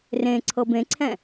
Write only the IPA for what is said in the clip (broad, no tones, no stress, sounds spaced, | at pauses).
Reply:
r ẽ ǀʰ ɤ b ẽ ǀʰ ɛ̃